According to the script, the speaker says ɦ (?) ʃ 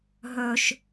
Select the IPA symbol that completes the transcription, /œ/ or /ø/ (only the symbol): œ